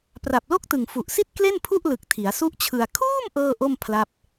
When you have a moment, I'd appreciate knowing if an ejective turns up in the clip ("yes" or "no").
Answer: no